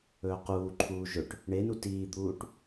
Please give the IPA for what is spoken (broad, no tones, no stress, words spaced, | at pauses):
ɵːquːǃʰuː ʒɵʈ | ɳenu tiːd̪uːʈ